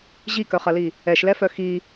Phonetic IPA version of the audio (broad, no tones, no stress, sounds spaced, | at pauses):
ʑ i k œ χ ɐ l i | ɛ ʃ l ɛ f œ x i